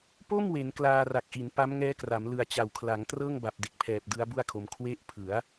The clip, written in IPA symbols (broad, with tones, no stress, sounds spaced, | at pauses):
p o˥˩ m w e˩˦ n k l aː˧ r a˨˩ k̚ ʔ i˩˦ n p a˦˥ m ŋ ɛː˦˥ k r a˩˦ m l ɯ˨˩ a̯ t͡ɕ a˩˦ w kʰ l a˩˦ ŋ t r ɤː˥˩ ŋ b a˨˩ p̚ d e˨˩ k̚ pʰ ɛː˨˩ p̚ d ɯ˦˥ a̯ b u˥˩ a̯ kʰ o˧ m kʰ w e˦˥ ʔ pʰ ɯ˩˦ a̯